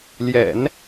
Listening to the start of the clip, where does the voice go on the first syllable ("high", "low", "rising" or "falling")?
low